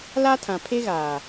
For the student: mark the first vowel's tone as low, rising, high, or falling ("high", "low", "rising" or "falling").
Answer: high